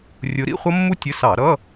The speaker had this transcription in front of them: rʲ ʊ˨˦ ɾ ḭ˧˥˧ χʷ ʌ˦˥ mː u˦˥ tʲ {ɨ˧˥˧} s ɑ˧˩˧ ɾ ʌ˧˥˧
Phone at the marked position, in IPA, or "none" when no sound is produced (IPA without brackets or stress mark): ə˧˥˧